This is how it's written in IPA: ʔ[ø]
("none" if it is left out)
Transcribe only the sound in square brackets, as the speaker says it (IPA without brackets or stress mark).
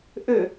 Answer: ø